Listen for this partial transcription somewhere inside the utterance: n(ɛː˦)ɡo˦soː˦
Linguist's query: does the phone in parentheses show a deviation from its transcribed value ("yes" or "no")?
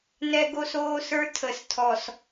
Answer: yes